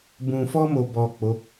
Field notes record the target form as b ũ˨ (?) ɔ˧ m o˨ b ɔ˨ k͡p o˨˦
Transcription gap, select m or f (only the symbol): f